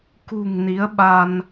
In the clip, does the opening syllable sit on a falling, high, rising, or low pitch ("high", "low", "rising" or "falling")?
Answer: low